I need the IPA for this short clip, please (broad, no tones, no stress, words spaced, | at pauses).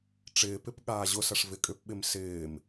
ʈ͡ʂɪːpɪp ɠaːʑʊsɐʂ vɪkʼʏpɓɪm sɪːm